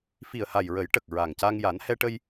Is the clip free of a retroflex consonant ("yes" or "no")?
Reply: no